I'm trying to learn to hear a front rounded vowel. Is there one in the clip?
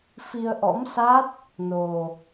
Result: no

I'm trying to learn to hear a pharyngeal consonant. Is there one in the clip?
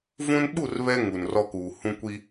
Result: no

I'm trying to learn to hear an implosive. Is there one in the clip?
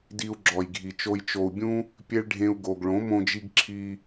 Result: no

